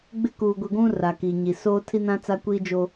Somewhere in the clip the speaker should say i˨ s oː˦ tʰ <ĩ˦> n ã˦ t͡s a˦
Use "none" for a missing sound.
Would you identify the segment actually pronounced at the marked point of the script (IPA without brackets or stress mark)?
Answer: i˦